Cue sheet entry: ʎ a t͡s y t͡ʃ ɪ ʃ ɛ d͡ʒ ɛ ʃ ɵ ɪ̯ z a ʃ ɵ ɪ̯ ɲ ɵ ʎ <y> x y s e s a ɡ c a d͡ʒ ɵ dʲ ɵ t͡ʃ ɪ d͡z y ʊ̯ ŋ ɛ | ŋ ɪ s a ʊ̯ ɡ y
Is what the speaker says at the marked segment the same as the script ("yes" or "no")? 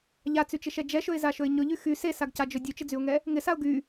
yes